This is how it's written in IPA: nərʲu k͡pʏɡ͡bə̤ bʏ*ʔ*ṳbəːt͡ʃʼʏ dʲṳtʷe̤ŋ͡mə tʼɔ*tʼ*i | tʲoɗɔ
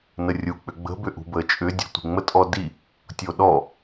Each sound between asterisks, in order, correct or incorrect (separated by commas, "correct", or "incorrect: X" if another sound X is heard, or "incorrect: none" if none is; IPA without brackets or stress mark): correct, incorrect: d